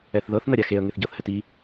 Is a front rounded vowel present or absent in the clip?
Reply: absent